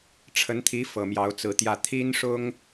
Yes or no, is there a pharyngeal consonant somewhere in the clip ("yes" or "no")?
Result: no